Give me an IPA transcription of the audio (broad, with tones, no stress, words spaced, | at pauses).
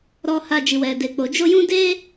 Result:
ɾɔ˧ha˧ d͡ʒi˨wɛ˨de˨k͡po˨ d͡ʒo˧jũ˦de˦